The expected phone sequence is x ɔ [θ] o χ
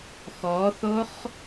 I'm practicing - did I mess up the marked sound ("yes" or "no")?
no